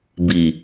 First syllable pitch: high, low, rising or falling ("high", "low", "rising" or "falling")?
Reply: low